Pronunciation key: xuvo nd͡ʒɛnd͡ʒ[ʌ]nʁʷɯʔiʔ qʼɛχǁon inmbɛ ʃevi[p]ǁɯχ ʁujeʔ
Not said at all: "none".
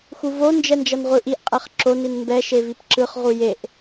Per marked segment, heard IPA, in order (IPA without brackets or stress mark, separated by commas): ʌ, p